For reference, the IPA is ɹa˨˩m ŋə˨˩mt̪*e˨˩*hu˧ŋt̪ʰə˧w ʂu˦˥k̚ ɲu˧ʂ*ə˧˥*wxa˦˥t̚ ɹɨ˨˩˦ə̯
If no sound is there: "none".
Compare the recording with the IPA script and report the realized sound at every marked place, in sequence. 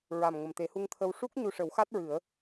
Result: e˨˩˦, ə˨˩˦

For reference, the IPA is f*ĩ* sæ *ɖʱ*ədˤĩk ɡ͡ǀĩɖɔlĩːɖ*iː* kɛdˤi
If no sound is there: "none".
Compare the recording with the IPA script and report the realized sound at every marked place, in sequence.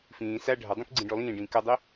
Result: ĩː, ɖʱ, ĩː

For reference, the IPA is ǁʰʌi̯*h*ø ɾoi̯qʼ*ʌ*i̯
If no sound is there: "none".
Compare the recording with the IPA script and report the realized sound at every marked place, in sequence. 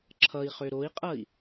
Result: χ, ʌ

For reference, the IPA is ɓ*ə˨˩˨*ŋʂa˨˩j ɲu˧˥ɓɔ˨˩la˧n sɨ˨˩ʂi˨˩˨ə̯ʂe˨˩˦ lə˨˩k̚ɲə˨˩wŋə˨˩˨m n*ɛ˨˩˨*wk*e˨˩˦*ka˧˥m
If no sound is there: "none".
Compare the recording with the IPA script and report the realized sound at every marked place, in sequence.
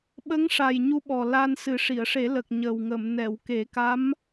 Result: ə˧˥, ɛ˨˩˨, e˨˩˦

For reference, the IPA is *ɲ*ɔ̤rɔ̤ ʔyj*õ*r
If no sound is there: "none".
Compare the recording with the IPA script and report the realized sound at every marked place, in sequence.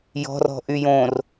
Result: j, õ

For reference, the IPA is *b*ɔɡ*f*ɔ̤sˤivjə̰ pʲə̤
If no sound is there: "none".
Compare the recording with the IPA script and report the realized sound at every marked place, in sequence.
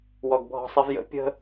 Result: w, bʱ

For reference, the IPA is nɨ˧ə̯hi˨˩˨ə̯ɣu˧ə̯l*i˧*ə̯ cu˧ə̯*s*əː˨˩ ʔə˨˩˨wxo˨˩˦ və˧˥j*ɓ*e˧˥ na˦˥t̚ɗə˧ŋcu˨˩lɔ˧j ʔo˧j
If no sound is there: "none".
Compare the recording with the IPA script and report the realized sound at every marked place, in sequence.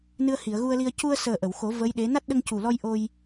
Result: i˧, s, ɗ

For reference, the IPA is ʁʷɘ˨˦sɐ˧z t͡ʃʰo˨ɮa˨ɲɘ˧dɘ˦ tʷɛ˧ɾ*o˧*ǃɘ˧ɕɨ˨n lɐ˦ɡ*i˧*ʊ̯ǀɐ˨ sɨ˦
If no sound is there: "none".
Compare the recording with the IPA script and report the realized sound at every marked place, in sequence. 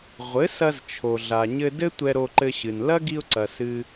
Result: o˧, i˧

